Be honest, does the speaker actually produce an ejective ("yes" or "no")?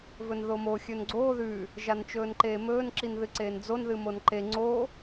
no